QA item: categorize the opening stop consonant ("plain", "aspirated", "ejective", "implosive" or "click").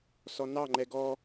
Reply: click